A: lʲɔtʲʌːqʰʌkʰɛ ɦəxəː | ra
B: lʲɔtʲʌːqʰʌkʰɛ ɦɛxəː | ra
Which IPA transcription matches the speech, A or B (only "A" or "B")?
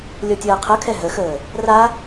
A